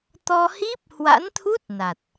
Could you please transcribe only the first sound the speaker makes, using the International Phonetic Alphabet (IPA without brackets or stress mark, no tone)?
t̪